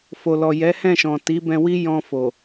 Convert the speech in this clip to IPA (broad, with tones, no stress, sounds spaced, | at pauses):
f o˨ l ɔ˨ j ɛ˨˦ h ɛ̃˦˨ ʃ ɔ̃˨ t i˨˦ b ɛ̃˧ w i˦ j ɔ̃˧ f o˨